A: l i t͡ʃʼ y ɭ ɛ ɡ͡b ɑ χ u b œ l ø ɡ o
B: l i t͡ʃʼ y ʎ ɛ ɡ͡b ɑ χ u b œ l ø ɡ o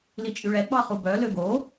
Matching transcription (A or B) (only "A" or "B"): A